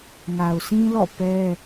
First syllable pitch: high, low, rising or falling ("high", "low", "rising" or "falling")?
low